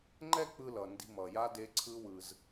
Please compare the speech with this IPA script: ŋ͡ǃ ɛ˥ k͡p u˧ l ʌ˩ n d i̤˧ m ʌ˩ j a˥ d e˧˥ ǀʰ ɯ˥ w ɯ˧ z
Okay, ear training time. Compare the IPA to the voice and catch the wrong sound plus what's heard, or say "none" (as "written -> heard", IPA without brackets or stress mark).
u˧ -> ɯ˧